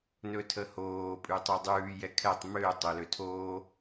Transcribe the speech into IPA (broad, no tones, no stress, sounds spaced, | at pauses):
n ɵ tʰ ə h oː pʼ ʉ tˤ ø dˤ ʉː j ɛ kʰ ɛ tˤ m ø tˤ o l ø tʰ oː